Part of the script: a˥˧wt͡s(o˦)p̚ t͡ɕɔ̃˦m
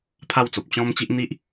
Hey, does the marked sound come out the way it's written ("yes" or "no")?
no